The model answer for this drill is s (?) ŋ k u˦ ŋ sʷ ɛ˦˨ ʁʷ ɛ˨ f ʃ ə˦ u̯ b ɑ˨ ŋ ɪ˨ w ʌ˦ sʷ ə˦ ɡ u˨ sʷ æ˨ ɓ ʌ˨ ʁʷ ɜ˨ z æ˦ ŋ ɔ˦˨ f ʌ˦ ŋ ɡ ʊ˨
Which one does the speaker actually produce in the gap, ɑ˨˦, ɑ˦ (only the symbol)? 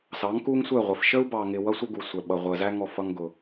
ɑ˨˦